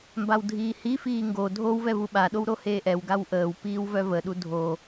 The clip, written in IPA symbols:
mbawdʱiːhifiː ŋɡo dʱowvɛ vuɓaɗow ɾoheːʔɛwɡaw ʔəːwpiːw vœvəɗu dʱo

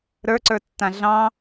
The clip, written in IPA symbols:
ɾə˞ǀə˞tːã ɮɑ̃

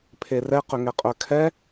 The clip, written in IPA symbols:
pʰerɛ qʏŋɛqʼœkʰɛ

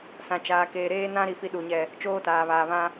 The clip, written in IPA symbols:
sã˨t͡ʃaː˨keː˨ ɾeː˦nã˦ɾi˨ fi˦ɗu˨ɲɛ˦˨ | t͡ʃoː˦taː˨βaː˨ βã˦

